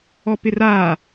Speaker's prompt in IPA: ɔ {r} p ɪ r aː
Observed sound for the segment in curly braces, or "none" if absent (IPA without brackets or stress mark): none